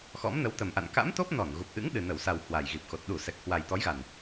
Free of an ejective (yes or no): yes